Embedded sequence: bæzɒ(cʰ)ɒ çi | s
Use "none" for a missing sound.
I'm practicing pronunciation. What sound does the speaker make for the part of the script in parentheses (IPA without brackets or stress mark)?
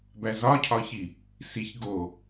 cʰ